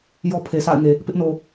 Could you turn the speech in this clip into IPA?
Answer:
j ɔ˦ pʰ e˨ sʰ a̰˦˨ ɪ̯ ŋ e˨ | p ɪ˦ ʔ n o˨

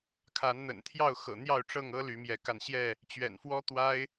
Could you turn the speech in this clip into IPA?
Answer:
kʰ a˨˦ n n̪ ə̰˨˩ n t̪ʰ j ɑ˥˨ ʊ̯ x ɤ̰˨˩ n̪ j ɑ˥˨ ʊ̯ ʈ͡ʂ ɤ˥˨ ŋ ɤ˦ l y˨˦ m j ɛ˨˦ k a˧ n ɕ j ɛ˥˨ | t͡ɕ ɥ ɛ̰˨˩ n f w ɔ˦ t̪ w a˦ ɪ̯

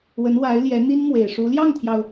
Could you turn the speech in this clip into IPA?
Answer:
w ə˧˥ n w a˧˥ ɪ̯ l j ɛ˧˥ n̪ i˥ n m w e˨˩ ɪ̯ ʂ u˧˥ l j ɑ˥˩ ŋ t̪ʰ j ɑ˩ ʊ̯

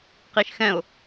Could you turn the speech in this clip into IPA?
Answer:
q i ʃ x ɛ̃ ʊ̯

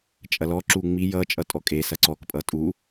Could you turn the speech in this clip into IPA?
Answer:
t͡ʃʼ ɐ l ɔ ǁ u ŋ͡m i j ʌ t͡ʃʼ ʌ tʼ ɔ kʼ e s ɐ ǀ ɔ k pʼ ʌ tʼ u

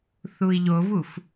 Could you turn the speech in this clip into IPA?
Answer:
θ u i̯ ʎ o v u f

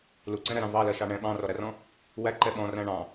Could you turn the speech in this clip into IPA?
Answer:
l u ǀ ɛ̃ ɾ æ ɾ ɑ̃ v ɑ l ɜ ʃ ɑ ɳ ɛ̃ ɓ ɑ̃ r ɔ ɾ æ r ɔ̃ | w æ ǃ ɛ ɓ ɔ̃ r æ̃ ɳ ɑ̃

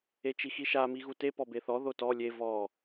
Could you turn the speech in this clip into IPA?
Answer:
e t͡ʃ i x i ʃ a m i ɣ u t e p ɔ b e θ ɔ ð o t ɔ lʲ e v ɔ

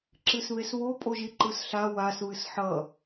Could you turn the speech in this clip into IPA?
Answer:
ǁ ɨ s β e s β o pʼ o ʒ i ǃ ɯ s ɬ a w a s β ɨ s ħ ʌ

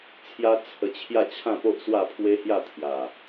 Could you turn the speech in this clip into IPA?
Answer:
t͡sʰ j a˦ t͡sʰ ə˧ t͡ɕʰ j a˥˧ t͡ɕʰ ã˥˧ p o˦ ʔ s w a˥˧ pʰ w e˦ h j a˥˧ t̪ʰ j a˨˩

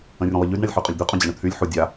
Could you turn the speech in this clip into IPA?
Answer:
ə̃ rʲ ũ lˠ ə ʎ y d ɳ a lʲ ħ y qʼ ɵ lʲ d̪ y qʼ ũ d͡ʑ a ɳ ɵ t̪ʰ y lʲ ħ u dʲ a

